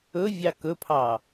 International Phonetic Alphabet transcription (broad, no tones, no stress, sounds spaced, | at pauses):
ɵ vʲ ɑ k ɵ pʰ ɑ